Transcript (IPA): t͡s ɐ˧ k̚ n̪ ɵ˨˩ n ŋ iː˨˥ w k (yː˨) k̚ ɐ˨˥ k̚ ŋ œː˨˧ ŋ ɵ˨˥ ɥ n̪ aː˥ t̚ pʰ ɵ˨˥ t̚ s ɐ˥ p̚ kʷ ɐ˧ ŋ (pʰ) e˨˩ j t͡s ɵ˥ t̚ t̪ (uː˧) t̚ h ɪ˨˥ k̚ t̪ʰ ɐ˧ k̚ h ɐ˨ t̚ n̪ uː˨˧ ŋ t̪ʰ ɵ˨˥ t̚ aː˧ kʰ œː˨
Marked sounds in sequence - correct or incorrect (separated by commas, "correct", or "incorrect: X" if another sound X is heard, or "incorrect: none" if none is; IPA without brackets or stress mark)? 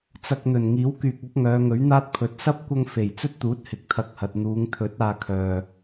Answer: correct, incorrect: f, incorrect: uː˨˥